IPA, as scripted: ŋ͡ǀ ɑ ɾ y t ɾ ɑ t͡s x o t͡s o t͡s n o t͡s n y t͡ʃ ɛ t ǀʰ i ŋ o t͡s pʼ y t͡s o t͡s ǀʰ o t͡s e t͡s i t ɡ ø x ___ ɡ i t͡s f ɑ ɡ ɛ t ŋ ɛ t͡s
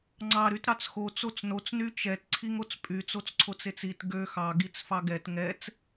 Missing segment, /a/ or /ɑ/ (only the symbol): ɑ